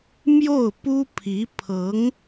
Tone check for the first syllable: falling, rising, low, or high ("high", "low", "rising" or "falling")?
falling